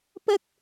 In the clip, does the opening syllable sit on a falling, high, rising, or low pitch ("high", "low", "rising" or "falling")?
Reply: high